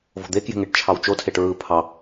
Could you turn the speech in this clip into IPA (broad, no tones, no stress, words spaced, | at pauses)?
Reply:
vo̤d̪ekje̤ ŋeʈt͡ʃʰɑwt͡ʃotʰeʈ ɹɯ pʰɑ